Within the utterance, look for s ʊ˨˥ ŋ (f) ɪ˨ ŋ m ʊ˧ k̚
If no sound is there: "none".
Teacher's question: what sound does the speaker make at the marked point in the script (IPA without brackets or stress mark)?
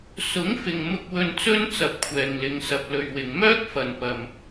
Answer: f